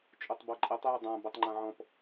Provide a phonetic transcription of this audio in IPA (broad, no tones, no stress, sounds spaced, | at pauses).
t͡ʃʼ u tˤ b ɔ ǃʼ ɛ tˤ j ɛ dˤ ã b ɔ tˤ ŋ͡ǃ ã ʕ ɔ̃ p